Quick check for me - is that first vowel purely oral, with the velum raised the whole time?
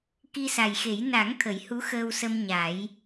yes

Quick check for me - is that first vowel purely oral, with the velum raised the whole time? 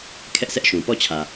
yes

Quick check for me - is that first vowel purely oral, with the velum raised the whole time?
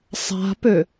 yes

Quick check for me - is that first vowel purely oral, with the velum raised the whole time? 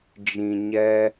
no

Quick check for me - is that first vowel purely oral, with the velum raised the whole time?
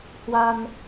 yes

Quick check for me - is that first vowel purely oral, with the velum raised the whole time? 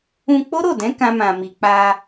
no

